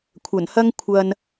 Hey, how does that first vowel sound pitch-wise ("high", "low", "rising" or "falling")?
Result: low